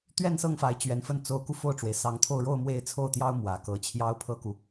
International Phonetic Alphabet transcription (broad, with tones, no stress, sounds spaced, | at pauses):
t̪ ɥ ɛ˥˧ n s ɤ˥˩ ŋ f a˧˥ ɪ̯ t͡ɕ ɥ ɛ˧˥ n f ə˥˩ n t͡s o˧˥ ʊ̯ k u˧ f o˥˩ ʊ̯ ʈ͡ʂ w e˩ ɪ̯ s ɑ˧˥ ŋ t̪ʰ o˥˧ ʊ̯ ɻ o˥˧ ʊ̯ m w e˥˧ ɪ̯ t͡sʰ o˥˩ ʊ̯ t̪ j ɑ˥ ʊ̯ m w ä˨˩ k ɤ˧˥ t͡ɕʰ j ɑ˥ ʊ̯ pʰ ɤ˥ k u˨